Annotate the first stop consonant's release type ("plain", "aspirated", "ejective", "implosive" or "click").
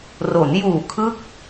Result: aspirated